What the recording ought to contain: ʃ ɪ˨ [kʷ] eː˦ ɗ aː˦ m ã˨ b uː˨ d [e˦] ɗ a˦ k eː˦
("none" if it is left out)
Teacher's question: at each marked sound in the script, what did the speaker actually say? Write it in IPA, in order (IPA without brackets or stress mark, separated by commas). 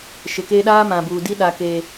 k, i˦